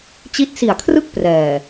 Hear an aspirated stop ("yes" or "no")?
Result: yes